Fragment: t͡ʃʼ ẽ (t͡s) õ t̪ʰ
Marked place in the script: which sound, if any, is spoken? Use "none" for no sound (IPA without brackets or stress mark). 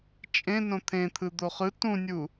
n